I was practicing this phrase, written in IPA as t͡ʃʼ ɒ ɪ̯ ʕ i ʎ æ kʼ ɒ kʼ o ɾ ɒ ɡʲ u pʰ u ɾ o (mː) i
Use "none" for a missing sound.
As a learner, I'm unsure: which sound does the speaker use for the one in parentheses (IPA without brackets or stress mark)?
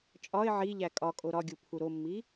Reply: mː